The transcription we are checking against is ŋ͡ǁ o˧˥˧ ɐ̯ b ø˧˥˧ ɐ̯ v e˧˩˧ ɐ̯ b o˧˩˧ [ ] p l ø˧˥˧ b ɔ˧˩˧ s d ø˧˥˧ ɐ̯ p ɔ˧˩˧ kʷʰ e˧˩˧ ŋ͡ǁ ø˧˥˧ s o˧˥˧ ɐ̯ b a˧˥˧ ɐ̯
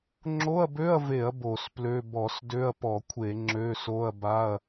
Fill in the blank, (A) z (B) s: B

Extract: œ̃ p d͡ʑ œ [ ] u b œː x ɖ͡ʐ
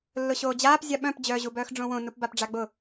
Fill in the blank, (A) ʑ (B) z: A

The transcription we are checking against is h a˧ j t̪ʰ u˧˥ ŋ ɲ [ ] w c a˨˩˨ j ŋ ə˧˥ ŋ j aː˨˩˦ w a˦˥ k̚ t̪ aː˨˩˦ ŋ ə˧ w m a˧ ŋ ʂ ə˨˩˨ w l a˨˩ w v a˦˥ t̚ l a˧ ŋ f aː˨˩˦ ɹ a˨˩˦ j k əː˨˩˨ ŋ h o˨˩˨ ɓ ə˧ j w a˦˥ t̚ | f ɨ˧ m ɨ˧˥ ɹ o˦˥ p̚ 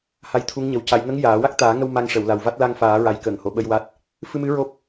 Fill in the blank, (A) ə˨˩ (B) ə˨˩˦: A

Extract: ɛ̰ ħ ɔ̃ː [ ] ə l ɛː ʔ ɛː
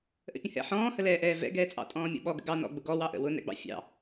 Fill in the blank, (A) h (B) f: A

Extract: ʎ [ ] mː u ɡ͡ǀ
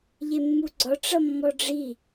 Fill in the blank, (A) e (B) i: A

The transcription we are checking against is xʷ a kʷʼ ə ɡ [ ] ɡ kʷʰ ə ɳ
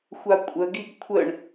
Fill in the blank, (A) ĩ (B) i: B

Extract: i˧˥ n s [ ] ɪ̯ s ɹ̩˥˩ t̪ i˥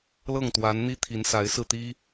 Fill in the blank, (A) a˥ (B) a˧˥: B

